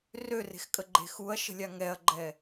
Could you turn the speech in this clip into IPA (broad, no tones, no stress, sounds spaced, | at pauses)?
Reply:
r ø r e̤ x kʼ ə ɡ͡ǃ e̤ x u ɐ̯ ʃ ə̤ lʲ a ŋ ɛ ɐ̯ ɡ͡ǃ ɛ